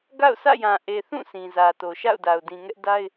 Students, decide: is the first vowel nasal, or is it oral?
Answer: oral